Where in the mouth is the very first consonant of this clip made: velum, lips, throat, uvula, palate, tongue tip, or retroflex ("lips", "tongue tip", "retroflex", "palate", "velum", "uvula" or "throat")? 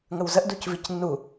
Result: velum